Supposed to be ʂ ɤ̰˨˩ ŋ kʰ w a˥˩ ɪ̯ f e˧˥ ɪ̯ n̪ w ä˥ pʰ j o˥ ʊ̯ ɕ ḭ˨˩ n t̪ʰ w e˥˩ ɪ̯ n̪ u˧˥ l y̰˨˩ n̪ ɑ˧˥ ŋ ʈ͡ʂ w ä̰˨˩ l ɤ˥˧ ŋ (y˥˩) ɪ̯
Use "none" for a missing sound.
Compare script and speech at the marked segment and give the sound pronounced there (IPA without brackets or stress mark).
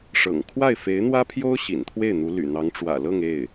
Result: e˥˩